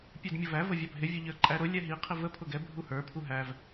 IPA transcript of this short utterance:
pʲ ɛ d mʲ ʊ v æ v ə vʲ ɑ bʱ ɪ vʲ ʊ ʎ ə˞ ǃʼ æ ɾ ʊ lʲ ɛ ɦ i qʰ ɪ v ə pʰ ʊ ɡ ɛ bʱ u h ə˞ pʰ u ɦ æ v

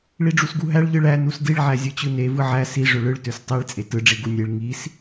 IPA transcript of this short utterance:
ɭ i ɖ͡ʐ u s ɡ u ɦ æ ɭ ʎ ɯ ɭ æ n u s d i ɭ ʕ æ zʲ ɯ t͡ɕ ɯ n e v ɯ ʕ æ s i ʐ ø ɭ ɯ ɭ t ø s tˤ i ɭ t͡sʼ e t ɯ ɖ͡ʐ i ɡ u nʲ e ɭ ŋ i s

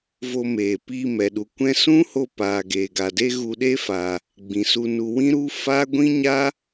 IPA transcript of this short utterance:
v o˧ m eː˨ p iː˧ m ɛ˨ ɗ u˨ kʷ ɛ̃˧ s ũ˦ h o˧ p aː˨ ɡ eː˨ ɡ a˨ d e˦ ɣ u˧ ɗ e˦ f a˨ | ɡ͡b ĩ˨ s u˧ n u˧ w ĩ˦ ɾ u˦ f a˦ ɡʷ ĩ˦ ɲ a˦

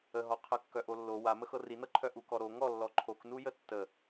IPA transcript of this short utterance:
ə ɦ ɔ qʰ ə kː œ ʔ o lː o w a m ə x ɤ r i n ɤ ǃʰ œ ʔ u k ɔ ɾ o ŋ ɔ lː ɔ ǃʰ o k n u j ə tː ə

